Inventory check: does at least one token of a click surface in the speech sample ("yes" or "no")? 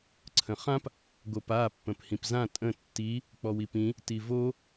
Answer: yes